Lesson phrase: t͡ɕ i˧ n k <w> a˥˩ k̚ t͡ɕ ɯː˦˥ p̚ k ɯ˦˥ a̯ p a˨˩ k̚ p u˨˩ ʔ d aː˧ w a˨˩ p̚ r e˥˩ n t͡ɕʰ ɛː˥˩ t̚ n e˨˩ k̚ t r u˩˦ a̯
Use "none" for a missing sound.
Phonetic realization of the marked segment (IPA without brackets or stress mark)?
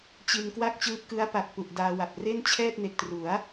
w